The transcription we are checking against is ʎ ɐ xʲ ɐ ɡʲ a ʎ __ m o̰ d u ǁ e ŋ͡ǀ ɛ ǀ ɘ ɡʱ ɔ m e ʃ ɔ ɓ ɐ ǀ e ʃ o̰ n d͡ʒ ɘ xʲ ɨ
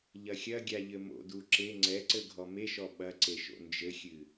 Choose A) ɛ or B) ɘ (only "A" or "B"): B